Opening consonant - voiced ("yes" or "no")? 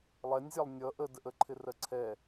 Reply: yes